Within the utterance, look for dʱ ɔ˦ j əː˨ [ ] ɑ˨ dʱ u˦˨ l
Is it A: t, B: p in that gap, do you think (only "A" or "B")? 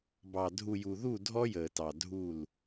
A